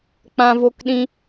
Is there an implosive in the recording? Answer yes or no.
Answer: yes